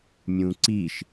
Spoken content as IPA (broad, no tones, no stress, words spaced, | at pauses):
mʲũǀiʃ